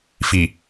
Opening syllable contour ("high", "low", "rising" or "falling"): low